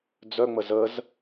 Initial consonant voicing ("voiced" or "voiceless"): voiced